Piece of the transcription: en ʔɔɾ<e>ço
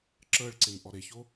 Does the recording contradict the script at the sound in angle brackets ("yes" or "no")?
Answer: no